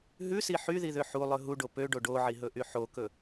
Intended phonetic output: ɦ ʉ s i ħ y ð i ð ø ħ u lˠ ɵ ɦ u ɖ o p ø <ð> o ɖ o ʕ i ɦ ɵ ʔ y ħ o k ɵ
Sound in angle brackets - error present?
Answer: yes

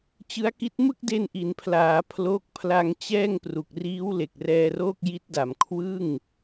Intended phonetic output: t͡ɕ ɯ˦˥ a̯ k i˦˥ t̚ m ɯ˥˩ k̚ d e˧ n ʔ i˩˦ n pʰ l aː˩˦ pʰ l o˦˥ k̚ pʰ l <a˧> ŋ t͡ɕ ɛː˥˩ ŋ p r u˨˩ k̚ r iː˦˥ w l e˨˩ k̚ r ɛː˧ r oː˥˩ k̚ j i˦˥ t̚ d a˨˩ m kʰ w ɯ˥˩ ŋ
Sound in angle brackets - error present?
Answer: no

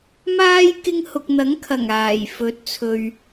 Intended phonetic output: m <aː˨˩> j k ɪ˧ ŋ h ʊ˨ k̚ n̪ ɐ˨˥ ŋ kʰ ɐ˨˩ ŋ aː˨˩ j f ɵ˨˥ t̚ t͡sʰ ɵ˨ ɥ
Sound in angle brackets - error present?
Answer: yes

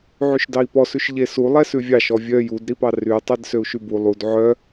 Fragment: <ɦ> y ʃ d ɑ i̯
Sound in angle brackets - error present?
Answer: yes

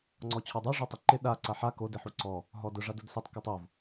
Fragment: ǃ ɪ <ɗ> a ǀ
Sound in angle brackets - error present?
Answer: no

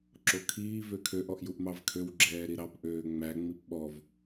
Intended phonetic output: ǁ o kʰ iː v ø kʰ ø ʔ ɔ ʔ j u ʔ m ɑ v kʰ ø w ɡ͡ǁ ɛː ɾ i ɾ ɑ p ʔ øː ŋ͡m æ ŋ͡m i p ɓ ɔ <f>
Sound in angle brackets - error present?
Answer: yes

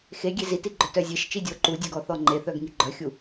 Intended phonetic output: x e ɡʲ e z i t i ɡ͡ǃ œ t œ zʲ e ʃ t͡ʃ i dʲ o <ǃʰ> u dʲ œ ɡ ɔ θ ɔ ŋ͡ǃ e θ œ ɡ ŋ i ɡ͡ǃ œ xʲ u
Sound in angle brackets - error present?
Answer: yes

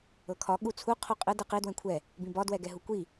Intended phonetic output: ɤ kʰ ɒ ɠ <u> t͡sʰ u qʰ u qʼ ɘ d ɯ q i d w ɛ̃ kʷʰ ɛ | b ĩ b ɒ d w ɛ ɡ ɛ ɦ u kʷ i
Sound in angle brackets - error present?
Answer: no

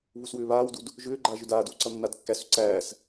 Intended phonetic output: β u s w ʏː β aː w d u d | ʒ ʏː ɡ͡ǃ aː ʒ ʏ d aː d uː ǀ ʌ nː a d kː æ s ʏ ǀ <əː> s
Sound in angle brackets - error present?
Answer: yes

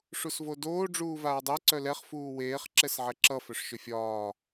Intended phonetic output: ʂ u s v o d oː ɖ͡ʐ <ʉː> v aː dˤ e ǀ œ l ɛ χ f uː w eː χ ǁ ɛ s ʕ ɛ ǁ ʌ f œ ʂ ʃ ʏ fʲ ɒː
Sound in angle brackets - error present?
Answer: yes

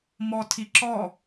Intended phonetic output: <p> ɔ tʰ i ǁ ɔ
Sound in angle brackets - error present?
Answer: yes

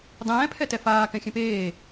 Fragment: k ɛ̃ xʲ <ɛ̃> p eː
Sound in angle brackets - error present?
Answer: no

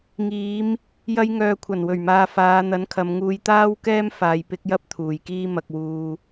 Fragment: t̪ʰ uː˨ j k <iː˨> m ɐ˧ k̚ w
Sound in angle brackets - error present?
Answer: yes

